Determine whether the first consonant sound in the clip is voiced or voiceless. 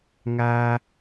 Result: voiced